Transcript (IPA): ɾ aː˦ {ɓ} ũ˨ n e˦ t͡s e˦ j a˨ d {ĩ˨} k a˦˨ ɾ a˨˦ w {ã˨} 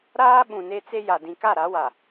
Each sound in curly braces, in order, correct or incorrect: correct, correct, incorrect

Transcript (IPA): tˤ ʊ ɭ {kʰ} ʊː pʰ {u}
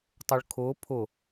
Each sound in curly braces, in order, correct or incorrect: correct, incorrect

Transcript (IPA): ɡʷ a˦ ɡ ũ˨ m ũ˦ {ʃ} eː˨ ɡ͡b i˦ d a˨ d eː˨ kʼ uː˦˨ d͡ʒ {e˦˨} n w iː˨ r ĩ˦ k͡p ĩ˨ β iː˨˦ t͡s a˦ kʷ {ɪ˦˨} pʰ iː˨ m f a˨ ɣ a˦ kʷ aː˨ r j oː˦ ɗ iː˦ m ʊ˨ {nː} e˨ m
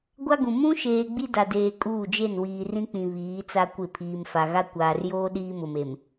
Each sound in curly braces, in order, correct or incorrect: correct, correct, correct, incorrect

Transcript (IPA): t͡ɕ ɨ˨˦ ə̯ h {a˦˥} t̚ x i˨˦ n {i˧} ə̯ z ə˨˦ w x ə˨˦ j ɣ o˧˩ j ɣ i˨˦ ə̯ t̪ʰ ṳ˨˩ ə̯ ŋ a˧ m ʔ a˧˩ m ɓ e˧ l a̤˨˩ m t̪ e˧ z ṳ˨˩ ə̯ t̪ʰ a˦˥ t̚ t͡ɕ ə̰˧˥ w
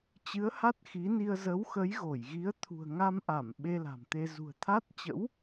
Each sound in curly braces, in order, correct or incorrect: correct, correct

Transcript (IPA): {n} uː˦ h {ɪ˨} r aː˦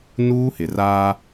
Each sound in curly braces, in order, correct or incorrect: correct, correct

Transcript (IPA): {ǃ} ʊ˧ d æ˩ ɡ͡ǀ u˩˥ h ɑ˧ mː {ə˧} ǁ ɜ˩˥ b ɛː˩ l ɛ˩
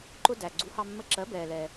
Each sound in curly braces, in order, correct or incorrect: correct, correct

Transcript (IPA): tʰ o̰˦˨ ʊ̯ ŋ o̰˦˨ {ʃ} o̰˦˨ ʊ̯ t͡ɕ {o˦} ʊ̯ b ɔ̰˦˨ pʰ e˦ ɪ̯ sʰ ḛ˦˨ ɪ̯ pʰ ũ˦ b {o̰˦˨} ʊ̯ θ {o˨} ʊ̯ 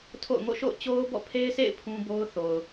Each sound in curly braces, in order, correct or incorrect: correct, correct, incorrect, correct

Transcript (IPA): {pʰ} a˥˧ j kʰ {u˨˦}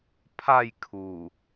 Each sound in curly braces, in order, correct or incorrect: correct, incorrect

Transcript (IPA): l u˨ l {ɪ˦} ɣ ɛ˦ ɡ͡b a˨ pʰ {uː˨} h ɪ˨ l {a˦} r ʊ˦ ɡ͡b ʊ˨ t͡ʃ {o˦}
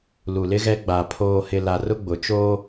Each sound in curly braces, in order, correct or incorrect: correct, incorrect, incorrect, incorrect

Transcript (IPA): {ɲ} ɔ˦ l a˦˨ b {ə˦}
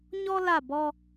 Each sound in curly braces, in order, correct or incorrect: correct, incorrect

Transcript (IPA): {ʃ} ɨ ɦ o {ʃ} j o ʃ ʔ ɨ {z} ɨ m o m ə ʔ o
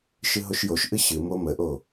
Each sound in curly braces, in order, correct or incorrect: correct, correct, incorrect

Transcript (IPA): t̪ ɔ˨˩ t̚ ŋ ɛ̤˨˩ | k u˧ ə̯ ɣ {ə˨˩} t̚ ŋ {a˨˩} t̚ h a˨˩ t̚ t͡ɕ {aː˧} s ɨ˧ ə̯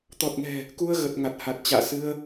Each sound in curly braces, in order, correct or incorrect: correct, correct, incorrect

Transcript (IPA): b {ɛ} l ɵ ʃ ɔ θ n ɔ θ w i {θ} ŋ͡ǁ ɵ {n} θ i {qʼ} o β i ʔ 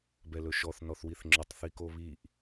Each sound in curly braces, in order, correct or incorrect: correct, correct, incorrect, incorrect

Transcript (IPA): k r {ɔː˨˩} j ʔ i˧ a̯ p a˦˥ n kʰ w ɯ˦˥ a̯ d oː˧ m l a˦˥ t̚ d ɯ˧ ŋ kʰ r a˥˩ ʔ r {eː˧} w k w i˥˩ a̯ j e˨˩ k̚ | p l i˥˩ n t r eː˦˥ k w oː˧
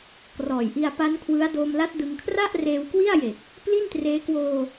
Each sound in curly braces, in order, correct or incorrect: correct, correct

